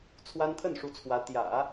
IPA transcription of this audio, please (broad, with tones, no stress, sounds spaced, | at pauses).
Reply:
t͡sʰ w a˥ n t̪ʰ ə˥˩ n ʂ u˧˥ t͡sʰ w ä˧˥ t̪ j ä̰˨˩˦